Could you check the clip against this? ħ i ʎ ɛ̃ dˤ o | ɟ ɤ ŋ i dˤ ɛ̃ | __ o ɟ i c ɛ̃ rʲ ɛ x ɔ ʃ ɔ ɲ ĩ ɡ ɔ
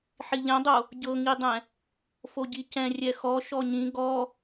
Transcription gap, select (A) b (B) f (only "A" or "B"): B